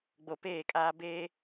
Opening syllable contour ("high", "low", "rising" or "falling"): low